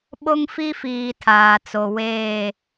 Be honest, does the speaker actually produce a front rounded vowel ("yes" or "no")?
no